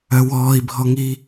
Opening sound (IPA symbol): œ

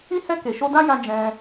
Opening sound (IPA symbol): ĩ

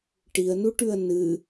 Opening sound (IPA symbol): ʈ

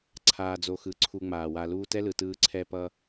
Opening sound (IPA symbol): ǀʰ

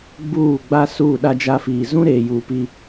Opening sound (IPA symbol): ɡ͡b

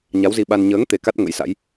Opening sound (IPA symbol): ɲ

